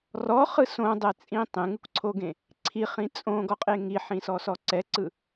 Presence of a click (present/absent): present